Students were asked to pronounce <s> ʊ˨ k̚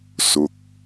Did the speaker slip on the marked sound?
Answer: no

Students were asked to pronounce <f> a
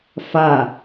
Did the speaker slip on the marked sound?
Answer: no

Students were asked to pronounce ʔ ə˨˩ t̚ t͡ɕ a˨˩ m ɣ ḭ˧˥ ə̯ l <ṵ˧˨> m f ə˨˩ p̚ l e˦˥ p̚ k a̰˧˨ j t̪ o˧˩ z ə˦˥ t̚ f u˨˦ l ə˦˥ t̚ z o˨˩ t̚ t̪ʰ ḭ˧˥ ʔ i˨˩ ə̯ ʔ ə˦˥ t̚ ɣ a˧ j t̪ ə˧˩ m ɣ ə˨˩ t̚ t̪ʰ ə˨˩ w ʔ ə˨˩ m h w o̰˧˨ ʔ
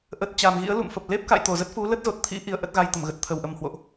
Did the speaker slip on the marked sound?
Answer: no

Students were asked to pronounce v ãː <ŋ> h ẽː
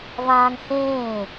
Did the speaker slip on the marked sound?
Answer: no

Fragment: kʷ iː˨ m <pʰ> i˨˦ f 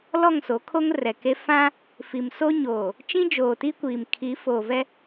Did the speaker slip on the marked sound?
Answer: yes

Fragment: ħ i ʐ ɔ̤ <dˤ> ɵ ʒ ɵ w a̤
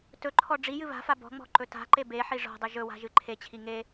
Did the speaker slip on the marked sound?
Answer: no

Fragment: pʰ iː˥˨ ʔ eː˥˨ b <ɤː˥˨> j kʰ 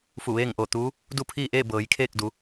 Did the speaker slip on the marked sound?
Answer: yes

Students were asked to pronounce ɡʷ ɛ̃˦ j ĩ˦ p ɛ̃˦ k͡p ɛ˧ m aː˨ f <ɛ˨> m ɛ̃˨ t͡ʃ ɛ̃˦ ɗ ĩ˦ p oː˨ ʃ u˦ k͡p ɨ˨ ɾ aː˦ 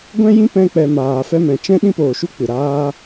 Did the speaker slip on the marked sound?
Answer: yes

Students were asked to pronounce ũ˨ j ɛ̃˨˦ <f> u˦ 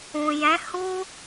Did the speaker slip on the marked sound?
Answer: yes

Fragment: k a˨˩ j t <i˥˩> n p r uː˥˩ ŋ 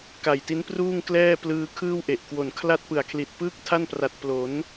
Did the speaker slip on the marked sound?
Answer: yes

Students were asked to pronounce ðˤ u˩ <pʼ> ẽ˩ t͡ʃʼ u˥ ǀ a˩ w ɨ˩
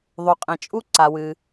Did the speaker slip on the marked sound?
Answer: yes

